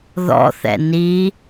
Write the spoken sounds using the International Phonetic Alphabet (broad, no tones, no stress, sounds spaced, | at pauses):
ð ɔ̰ θ ɛ̰ n i